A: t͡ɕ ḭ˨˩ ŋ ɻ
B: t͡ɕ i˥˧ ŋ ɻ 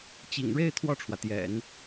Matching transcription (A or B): A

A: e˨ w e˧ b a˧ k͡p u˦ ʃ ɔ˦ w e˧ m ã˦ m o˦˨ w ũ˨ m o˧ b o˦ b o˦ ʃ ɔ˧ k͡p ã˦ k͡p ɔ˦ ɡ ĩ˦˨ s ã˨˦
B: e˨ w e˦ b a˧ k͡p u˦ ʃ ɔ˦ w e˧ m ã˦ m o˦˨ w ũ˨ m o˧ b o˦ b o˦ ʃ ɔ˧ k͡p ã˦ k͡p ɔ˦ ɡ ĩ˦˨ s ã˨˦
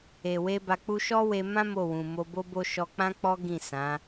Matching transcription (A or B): A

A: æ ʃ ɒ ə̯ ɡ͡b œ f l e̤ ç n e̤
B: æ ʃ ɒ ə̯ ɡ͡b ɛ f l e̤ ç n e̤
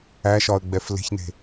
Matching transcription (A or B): B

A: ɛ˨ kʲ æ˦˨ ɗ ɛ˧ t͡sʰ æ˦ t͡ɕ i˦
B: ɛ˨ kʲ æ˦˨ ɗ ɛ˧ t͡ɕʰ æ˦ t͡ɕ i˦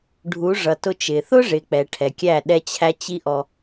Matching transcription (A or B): B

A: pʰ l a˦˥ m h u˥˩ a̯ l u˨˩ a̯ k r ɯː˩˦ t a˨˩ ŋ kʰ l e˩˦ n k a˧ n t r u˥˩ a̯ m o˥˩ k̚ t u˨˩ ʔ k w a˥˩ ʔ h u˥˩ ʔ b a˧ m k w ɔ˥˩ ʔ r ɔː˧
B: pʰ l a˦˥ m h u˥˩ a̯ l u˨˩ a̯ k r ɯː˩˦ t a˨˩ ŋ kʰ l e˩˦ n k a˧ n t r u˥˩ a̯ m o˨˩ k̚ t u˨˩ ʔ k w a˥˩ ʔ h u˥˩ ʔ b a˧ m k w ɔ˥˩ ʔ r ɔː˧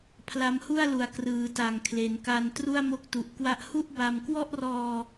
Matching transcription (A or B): A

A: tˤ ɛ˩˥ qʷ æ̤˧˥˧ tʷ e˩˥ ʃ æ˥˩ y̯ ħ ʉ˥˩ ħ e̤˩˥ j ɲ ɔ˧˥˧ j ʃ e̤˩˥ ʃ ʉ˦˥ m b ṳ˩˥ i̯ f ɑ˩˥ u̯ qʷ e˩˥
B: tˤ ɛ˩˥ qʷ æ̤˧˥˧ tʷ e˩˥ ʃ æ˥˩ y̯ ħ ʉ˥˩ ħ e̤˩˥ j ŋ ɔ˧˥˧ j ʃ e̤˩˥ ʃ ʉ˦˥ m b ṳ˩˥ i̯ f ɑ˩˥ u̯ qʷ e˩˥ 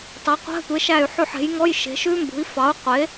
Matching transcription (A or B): B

